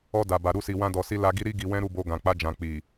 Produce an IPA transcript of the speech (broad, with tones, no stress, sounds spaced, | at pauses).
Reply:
ɔ˧ d a˨ b a˨ ɾ u˧ s i˨ w ã˧ d ɔ˨ s i˧ l a˧ ɡ i˦ ɾ i˦ ɡ i˧ w ɛ̃˦ ɾ u˦˨ b o˧ ɡ ã˨ k͡p a˧ d͡ʒ ã˨ k͡p i˨